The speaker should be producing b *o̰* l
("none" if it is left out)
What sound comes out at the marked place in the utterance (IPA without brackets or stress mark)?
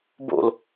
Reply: o̰